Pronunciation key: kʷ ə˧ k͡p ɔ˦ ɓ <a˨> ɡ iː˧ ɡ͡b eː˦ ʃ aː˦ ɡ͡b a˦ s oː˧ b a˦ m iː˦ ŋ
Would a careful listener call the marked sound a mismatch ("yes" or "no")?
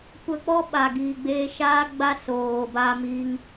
yes